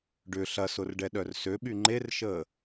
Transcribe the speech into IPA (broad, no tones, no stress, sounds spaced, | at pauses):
ɖ ʏ ɬ ɐ s ʊ r ɖ ɛ ɗ œ r s ø ɓ y ŋ͡ǃ e r ʃ əː